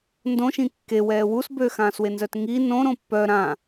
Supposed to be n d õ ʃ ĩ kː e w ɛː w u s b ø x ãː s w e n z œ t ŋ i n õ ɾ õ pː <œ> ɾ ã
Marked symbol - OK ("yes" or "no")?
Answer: yes